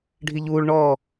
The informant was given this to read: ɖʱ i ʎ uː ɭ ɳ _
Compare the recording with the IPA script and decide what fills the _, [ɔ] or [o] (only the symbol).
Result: ɔ